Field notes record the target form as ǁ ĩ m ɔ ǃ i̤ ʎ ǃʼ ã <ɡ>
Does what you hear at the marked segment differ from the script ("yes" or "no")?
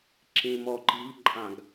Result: no